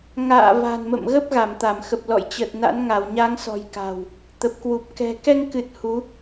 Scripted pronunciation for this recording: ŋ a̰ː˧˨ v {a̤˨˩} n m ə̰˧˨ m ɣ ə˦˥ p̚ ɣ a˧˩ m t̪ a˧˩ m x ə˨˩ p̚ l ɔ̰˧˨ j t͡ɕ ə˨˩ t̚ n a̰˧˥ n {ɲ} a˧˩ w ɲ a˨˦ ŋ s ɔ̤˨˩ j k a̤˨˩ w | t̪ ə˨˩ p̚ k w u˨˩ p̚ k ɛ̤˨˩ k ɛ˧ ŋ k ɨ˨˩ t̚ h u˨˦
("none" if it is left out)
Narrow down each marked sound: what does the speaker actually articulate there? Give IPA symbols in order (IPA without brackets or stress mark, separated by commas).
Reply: a̤˨˩, ŋ